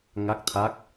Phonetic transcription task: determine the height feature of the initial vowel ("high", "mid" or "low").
low